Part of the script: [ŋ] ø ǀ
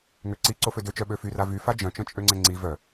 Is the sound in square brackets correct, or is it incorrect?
correct